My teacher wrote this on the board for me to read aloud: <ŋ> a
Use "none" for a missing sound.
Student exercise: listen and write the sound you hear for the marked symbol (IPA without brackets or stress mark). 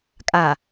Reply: kʼ